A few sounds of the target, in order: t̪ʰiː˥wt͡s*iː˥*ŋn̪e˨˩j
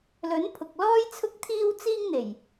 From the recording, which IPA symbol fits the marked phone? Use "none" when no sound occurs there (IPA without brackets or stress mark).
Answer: iː˥